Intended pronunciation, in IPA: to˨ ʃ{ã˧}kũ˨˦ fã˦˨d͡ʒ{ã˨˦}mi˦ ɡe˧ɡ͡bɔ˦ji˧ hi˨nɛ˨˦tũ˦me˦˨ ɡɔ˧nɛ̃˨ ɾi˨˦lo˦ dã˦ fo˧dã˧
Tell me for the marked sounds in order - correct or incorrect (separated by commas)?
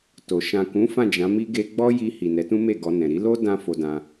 incorrect, correct